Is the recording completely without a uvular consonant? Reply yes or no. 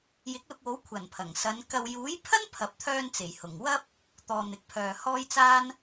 yes